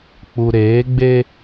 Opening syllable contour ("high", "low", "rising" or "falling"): low